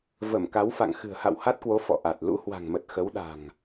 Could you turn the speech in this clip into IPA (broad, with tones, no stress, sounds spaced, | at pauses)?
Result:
v ə˧˩ m k a˨˦ w f a̰˧˨ ŋ x ɨ̤˨˩ ə̯ h a̰˧˨ w h a˦˥ t̚ k w o˨˦ f ɔ̰˧˨ ʔ a˨˩ t̚ l ṵ˧˥ h w a̤˨˩ ŋ m ə˨˩ t̚ x ə˨˦ w ɗ a̤˨˩ ŋ